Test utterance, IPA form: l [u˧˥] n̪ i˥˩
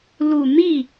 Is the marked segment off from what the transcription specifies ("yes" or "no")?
yes